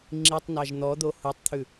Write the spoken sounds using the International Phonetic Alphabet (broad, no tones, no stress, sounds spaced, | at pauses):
ŋ͡ǁ i tˤ n ɑ ʒ n̪ ɔ d̪ o h u tˤ t̪ʰ ʉ